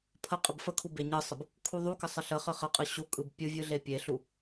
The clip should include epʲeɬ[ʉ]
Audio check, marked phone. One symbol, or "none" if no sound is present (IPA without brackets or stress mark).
u